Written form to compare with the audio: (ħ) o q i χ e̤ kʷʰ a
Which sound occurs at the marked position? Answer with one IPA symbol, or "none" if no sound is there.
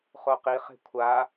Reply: χ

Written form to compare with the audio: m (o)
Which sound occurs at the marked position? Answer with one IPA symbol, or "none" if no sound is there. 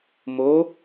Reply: o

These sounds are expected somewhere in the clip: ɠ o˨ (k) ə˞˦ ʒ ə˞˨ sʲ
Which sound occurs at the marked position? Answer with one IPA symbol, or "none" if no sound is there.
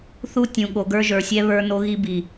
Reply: ɡ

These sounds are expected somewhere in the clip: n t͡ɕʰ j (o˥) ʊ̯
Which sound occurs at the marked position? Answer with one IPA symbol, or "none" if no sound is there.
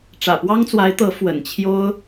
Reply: o˥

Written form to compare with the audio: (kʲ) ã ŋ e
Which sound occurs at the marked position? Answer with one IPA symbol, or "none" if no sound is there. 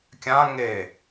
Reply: kʲ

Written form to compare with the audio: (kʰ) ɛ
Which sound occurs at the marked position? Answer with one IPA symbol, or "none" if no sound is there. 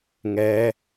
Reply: ŋ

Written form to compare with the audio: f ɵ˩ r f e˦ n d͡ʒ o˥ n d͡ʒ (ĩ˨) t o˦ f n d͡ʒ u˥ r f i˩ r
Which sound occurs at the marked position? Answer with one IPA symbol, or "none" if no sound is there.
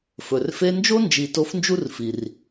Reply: i˨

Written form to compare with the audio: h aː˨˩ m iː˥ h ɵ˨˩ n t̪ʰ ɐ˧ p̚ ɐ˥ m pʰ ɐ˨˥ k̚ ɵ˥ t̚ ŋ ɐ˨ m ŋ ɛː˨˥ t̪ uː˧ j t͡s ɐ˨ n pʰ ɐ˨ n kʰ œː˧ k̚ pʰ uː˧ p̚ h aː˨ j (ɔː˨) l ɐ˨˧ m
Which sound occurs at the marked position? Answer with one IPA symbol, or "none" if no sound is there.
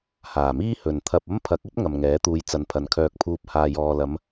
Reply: ɔː˨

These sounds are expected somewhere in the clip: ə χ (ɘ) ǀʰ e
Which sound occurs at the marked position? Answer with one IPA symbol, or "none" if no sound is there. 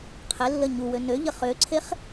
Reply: ø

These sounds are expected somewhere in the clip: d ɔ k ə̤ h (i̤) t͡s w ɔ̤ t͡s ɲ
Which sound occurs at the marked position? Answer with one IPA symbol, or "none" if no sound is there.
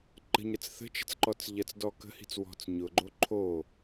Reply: i̤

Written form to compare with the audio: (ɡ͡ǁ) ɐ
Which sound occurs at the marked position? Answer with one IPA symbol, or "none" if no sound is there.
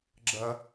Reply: ɡ͡ǁ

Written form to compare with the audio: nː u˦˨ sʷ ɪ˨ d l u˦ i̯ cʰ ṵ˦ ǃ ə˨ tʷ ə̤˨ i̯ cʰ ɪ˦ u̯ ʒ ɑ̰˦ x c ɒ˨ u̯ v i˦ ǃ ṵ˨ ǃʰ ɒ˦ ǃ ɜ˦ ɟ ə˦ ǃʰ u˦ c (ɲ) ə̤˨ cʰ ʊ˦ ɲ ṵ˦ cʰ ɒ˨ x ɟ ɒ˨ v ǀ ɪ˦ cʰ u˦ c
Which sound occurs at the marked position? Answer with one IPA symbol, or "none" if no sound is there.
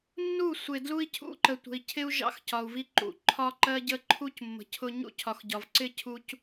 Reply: mː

